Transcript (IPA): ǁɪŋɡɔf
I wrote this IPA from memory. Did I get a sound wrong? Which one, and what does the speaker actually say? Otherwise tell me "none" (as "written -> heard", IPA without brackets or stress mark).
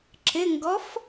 none